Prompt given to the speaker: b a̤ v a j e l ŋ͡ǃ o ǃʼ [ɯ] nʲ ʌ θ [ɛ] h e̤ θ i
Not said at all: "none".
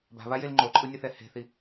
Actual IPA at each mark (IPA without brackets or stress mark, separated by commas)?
ɯ, ɛ